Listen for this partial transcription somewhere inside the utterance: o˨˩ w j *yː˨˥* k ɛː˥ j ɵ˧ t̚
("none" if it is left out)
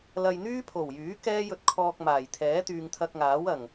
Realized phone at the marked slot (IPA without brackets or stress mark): yː˨˥